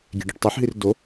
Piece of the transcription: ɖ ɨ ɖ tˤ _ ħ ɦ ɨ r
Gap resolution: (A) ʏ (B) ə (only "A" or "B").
B